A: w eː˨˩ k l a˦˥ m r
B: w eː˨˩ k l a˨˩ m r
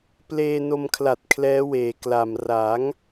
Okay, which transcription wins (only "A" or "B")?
B